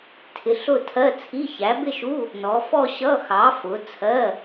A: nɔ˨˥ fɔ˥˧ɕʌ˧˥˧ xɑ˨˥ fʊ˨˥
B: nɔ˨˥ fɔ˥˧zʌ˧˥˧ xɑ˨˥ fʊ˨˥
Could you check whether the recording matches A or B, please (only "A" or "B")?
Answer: A